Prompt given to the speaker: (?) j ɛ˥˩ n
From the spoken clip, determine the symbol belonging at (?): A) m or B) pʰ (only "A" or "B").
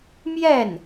A